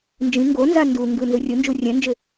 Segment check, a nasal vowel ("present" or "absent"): present